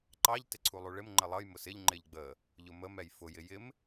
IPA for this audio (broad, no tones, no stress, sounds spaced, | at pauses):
ǃ ɑ ʎ t ɪ ǀʰ u lˠ u ɭ ɪ m ŋ͡ǃ ə lˠ ʌ j m ʊ s ɪ ʎ ŋ͡ǃ ɪ ʎ ɡ͡b ə | ʎ ʊ m ə m ɛ j f ʊ j ɪ j ɪ m